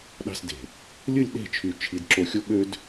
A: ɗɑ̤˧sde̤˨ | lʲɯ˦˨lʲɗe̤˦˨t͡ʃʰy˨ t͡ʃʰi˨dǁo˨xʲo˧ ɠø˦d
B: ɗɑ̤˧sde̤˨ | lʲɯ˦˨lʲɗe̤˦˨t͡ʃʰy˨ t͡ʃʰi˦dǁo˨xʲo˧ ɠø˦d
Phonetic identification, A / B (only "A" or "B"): A